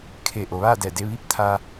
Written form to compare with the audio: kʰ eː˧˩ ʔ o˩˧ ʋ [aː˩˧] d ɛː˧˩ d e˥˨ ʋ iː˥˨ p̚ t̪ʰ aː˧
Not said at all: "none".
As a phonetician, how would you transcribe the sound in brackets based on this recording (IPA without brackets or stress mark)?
aː˥˨